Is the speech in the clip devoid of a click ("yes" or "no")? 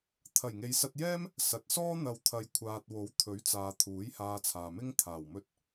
yes